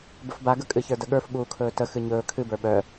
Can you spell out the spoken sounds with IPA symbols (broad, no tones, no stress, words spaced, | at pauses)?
bəfbaɡə kʼɨçə˞dəɠə˞f ɓuːkʰɵːtə xɨɲɵː kʰɨbə˞ ɓœ